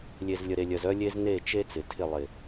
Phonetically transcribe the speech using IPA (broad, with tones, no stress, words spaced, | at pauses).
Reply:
lʲe˨z lʲə˨ɾe˨lʲœ˨z œ˦lʲe˦z ne˦˨t͡ʃe˦ t͡sɪ˨tʰɪ˦˨ lˠɪ˨